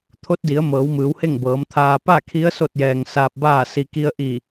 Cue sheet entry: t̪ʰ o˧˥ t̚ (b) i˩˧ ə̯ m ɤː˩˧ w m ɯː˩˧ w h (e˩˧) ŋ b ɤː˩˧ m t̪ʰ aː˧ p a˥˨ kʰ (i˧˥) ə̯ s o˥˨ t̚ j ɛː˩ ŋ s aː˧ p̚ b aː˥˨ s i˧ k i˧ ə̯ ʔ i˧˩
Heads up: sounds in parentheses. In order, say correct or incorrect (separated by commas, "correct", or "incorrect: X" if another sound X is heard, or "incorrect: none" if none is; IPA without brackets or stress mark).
incorrect: d, incorrect: e˥˨, correct